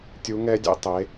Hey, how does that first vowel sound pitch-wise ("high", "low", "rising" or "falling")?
rising